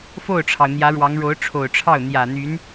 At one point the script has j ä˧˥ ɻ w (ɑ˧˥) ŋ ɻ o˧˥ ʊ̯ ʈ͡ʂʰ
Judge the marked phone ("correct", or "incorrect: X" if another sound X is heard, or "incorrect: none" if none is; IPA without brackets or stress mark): correct